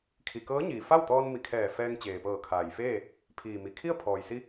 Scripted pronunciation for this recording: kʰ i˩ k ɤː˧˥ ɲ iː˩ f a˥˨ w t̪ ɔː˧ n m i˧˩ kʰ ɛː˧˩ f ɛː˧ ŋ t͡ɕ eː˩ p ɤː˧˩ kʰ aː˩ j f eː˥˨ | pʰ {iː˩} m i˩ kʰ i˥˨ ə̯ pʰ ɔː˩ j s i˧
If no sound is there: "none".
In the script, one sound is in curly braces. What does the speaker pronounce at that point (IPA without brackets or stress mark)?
iː˩